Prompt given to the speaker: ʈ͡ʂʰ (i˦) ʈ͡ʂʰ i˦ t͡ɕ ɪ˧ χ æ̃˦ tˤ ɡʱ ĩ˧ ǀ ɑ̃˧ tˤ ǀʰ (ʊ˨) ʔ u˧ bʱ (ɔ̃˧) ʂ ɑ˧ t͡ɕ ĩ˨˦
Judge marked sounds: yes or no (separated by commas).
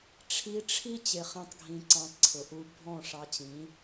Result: no, yes, no